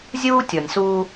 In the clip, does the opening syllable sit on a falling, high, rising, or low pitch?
high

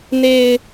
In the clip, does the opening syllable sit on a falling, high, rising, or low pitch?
low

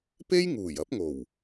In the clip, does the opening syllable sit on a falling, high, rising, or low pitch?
high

